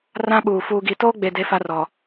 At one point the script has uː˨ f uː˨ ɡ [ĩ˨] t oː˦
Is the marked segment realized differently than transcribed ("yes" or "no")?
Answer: yes